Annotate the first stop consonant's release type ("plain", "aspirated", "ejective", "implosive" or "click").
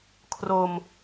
aspirated